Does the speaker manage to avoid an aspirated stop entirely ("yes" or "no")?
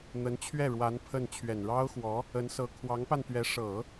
no